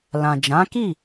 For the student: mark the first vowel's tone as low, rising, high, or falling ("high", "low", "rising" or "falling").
low